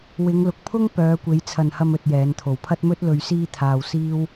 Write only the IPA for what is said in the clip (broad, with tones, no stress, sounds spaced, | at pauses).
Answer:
w ɪ˨˧ ŋ l ʊ˨ k̚ pʰ ʊ˥ ŋ p œː˨˧ kʷ e˨˧ j t͡sʰ ɐ˨ n h ɐ˧ m ɵ˨ t̚ j ɛː˨˧ n t̪ʰ o˨ w pʰ ɐ˥ t̚ m ɵ˥ t̚ l ɵ˧ ɥ s iː˥ t̪ʰ aː˧ w s iː˥ w